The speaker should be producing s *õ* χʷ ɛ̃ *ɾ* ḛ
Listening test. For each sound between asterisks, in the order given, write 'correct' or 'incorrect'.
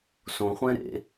correct, correct

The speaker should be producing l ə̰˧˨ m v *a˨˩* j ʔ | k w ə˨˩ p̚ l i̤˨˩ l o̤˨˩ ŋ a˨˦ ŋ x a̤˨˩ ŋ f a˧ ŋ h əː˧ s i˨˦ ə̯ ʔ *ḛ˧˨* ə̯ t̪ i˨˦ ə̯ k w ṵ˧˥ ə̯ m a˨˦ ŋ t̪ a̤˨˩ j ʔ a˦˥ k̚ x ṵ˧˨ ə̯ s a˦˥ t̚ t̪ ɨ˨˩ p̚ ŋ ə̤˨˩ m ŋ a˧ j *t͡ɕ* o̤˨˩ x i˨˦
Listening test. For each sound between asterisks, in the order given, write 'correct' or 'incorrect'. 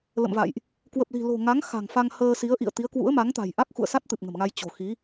incorrect: a̰˧˨, incorrect: ḭ˧˨, correct

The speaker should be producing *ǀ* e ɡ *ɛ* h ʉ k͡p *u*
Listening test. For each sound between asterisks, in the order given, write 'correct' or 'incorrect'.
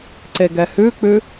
correct, correct, incorrect: ʉ

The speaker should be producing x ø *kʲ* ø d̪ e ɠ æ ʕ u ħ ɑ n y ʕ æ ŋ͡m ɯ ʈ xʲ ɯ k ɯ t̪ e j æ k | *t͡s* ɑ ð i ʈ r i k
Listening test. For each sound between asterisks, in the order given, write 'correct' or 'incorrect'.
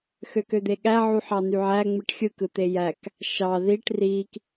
incorrect: k, incorrect: ʃ

